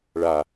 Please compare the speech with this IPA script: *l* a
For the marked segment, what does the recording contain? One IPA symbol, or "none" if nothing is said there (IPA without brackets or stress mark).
ɭ